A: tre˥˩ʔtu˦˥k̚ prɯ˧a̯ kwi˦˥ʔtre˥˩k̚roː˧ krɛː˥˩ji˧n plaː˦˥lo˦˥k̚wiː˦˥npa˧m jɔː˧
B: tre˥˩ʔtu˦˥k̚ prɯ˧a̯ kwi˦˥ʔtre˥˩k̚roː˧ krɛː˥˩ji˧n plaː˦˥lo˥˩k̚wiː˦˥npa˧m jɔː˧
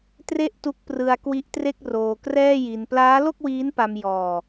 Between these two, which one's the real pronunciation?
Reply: B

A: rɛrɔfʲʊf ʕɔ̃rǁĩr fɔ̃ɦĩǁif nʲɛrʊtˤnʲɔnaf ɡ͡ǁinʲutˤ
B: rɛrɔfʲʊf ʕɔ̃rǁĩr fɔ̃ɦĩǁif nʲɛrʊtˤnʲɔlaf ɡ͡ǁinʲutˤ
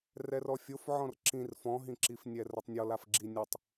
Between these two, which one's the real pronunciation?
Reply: B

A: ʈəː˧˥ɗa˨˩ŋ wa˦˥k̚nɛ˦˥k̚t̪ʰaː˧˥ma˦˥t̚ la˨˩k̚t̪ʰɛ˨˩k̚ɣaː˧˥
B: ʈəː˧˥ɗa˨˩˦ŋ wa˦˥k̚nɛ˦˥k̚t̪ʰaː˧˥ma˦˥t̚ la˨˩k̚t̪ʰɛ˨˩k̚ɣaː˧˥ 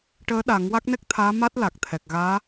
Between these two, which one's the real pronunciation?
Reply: B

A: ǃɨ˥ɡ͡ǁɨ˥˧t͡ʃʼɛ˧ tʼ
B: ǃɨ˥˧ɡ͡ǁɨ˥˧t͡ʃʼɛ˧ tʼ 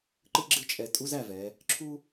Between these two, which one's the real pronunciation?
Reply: A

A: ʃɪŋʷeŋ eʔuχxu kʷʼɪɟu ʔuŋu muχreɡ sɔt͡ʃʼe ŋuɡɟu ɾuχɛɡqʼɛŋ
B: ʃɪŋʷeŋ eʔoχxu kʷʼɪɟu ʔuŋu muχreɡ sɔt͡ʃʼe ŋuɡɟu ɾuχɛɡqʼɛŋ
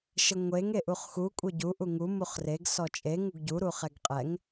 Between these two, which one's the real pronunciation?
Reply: A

